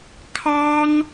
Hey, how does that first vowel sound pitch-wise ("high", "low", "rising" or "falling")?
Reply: high